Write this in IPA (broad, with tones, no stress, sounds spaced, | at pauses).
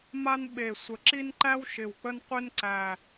m a˦ n ɓ e˨˩ sʷ ə˨˩ ǁ i˦ n ǃ æ˦ w ʃ ɪ˨˩ w k͡p ə˦ n qʷ e˦ n ǀ æ˨˩